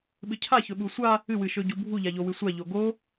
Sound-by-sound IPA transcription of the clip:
ɓ ɨ cʰ a ç ɵ ɓ u sʷ a | ɨ w ɨ ʃ ɵ ɟ u bʱ u ʎ a ʎ o w ɨ sʷ a ʎ o ɡ o

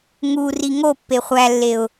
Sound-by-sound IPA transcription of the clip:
ŋ u r i ŋ o pː e χʷ æ lː e ʊ̯

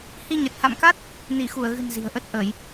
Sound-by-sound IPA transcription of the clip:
h i˧ ɲ ə˨˩ t̚ h a̰˧˨ m k a˦˥ t̚ | n i˧˩ x u˧˩ ə̯ ɣ ɨ̤˨˩ n z i̤˨˩ ə̯ ʔ ə˦˥ t̚ ʔ əː˧˩˨ j

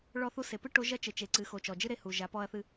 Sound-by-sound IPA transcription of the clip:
ɭ ɔ˧ θ u˧ s e˩ p ɨ˥ ʈ o˧˥ ʒ ɐ˥ t͡ʃ ɘ˩ t͡ʃ e˩ ǀ ɨ˩˧ x o˩ t͡ʃ ɔ˩ d͡ʒ ɨ˥ ɾ e˧ h u˩ ʒ a˩˧ p ɔ˧ ɐ̯ θ ɨ˧

